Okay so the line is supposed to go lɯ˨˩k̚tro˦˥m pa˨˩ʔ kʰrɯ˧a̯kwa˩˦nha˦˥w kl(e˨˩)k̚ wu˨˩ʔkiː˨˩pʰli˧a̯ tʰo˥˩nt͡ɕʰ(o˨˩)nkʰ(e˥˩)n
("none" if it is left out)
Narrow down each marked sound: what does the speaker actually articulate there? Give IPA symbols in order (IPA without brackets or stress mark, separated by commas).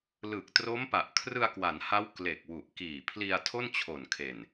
e˨˩, o˨˩, e˨˩